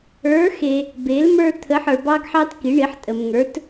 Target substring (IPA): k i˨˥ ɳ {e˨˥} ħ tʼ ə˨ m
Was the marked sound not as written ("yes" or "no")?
yes